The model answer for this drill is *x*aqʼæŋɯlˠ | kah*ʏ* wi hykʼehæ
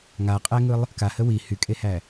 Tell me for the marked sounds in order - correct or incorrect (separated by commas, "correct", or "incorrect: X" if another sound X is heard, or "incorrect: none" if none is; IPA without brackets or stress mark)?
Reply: incorrect: ŋ, incorrect: ə